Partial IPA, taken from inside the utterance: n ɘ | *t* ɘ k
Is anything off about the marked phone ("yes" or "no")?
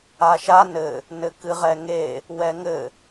yes